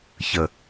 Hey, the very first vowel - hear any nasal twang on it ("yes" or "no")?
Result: no